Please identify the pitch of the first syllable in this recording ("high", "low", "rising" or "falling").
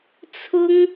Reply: high